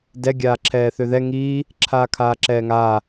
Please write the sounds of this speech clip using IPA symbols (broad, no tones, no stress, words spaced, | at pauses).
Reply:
dɛ ɡʲaːǁʰɛːθøðɛ ŋiː | ǁʰaːkʰaːǁɛːŋaː